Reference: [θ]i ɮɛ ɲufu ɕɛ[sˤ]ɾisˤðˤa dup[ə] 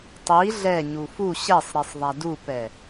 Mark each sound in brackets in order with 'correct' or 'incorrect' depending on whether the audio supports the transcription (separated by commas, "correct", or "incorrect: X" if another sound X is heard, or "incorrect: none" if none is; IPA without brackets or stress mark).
incorrect: tˤ, correct, incorrect: ɛ